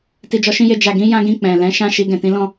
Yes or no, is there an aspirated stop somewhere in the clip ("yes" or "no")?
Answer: no